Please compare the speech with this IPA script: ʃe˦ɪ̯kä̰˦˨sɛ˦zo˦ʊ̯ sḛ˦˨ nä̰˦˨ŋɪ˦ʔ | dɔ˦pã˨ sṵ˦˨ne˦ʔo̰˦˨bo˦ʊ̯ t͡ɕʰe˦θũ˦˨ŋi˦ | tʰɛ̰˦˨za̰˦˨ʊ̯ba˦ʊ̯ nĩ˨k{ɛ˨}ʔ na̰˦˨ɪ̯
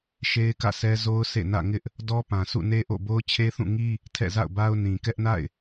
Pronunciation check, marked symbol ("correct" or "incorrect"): incorrect